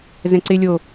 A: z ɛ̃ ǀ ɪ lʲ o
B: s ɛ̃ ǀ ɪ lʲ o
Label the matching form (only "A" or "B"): A